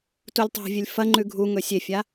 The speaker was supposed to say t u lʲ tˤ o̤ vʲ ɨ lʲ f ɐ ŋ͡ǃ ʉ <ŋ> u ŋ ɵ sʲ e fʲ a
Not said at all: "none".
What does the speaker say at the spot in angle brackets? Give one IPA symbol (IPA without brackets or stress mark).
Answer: ɡʱ